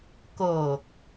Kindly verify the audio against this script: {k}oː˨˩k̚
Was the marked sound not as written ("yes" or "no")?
no